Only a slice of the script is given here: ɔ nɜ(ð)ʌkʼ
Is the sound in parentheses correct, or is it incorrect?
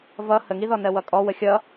incorrect